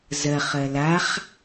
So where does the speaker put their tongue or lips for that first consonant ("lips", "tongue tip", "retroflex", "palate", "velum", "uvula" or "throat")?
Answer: tongue tip